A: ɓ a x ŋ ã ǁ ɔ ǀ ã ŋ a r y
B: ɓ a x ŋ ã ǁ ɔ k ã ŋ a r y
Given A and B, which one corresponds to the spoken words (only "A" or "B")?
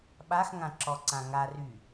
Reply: A